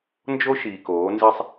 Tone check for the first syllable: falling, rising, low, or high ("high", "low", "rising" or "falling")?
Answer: high